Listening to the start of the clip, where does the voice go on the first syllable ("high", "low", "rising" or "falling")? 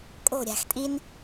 falling